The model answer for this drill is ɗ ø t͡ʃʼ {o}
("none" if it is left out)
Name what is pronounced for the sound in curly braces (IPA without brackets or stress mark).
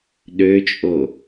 o